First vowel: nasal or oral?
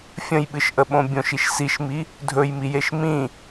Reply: nasal